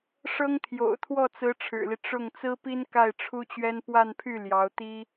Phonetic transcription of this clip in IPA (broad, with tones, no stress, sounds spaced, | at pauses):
ʂ ɤ˥ ŋ t̪ʰ j o̰˨˩ ʊ̯ t̪ʰ w ɔ˥˩ t͡s ɹ̩˧˥ ʈ͡ʂʰ ɻ̩˨˩ l i˦ ʈ͡ʂ ʊ˥˩ ŋ t͡s ɹ̩˥ p i˥ n k a˥˩ ɪ̯ ʈ͡ʂʰ u˥ t͡ɕ ɥ ɛ˥ n p w a˥˧ n pʰ y˥˩ l j ɑ˧˥ ʊ̯ t̪ i˥